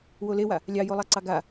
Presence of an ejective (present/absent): absent